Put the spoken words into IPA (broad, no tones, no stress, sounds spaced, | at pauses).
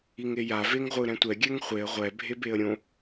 i ŋ e j a v e ŋ ʁʷ ɯ ɾ ɛ̃ tʷ ɛ ɡʲ ɛ ŋ χʷ e ə̯ ʁʷ ɛ bʱ e b e ə̯ ɾʲ õ